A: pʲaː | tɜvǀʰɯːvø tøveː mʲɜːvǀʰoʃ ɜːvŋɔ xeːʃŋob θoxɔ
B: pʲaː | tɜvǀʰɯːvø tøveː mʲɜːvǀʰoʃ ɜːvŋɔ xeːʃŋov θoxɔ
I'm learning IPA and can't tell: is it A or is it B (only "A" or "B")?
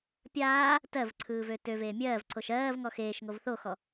B